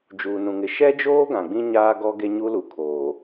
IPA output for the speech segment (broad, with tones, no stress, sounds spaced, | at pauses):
d͡ʒ uː˨ n ũ˨ ŋ ɪ˨ ʃ ɛ˦ d͡ʒ oː˦ ɡ ã˨ ɡ͡b ĩ˦ ɲ aː˦ ɡ ɔ˦ ɡ e˦ ɲ u˦ l u˨ kʰ oː˨